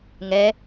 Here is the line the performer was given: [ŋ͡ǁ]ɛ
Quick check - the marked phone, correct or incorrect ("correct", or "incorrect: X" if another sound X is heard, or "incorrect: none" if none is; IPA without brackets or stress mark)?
incorrect: ŋ